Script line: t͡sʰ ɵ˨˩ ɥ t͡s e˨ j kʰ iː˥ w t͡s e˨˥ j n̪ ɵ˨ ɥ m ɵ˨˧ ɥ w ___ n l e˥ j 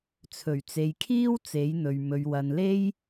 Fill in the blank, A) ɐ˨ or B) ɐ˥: A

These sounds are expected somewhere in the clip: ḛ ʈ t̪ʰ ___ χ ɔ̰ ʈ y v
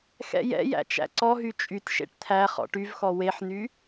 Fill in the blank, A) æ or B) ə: A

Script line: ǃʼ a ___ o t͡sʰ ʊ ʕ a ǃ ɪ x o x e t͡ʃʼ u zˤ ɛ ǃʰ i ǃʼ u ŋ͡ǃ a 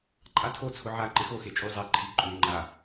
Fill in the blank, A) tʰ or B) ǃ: A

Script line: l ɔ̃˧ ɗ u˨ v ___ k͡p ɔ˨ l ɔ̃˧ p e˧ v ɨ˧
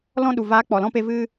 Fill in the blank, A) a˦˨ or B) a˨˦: B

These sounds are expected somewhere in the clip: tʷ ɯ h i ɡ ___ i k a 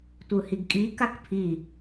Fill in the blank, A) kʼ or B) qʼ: A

